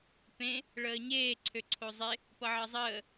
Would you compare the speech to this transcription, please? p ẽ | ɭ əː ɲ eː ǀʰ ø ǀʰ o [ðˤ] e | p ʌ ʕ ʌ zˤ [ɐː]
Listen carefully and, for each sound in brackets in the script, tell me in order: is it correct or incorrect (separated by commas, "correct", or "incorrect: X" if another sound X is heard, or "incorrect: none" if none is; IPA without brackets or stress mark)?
incorrect: zˤ, incorrect: əː